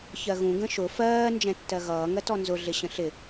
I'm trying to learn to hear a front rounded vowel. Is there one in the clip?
no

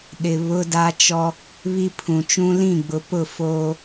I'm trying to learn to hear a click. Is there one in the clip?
no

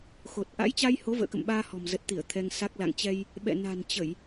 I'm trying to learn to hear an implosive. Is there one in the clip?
yes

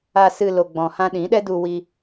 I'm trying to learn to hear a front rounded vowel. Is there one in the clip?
no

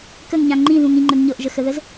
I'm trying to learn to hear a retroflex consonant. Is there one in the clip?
no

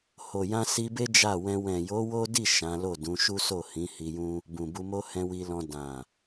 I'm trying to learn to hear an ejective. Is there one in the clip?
no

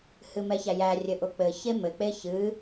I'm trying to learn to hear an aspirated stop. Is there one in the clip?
no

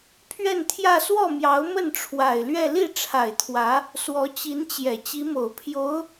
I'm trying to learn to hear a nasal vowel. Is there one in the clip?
no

